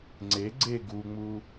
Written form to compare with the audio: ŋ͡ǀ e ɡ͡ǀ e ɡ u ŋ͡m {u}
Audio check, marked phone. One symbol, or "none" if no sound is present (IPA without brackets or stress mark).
u